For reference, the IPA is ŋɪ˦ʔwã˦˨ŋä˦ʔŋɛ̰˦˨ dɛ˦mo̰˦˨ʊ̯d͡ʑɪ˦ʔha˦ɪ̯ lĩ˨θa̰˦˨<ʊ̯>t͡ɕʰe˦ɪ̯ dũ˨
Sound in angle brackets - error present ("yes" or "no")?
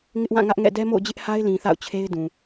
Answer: no